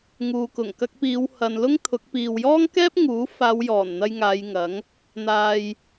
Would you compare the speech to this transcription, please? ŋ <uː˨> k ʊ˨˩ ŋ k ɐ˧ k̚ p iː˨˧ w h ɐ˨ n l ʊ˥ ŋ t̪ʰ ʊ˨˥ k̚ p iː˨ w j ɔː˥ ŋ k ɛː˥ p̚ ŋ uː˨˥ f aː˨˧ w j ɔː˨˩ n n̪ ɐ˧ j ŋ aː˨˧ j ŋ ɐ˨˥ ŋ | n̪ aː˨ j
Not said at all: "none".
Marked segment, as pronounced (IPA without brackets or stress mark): uː˨